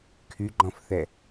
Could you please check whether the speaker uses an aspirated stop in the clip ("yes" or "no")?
yes